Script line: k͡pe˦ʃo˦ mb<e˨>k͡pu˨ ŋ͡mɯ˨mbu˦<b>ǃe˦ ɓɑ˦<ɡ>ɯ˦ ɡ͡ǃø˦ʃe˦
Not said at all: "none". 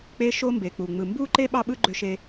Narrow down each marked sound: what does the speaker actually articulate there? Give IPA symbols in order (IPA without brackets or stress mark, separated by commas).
e˨, none, ɓ